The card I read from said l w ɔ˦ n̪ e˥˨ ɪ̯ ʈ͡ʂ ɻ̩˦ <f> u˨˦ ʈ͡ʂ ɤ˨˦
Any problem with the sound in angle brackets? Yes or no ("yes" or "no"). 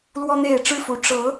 no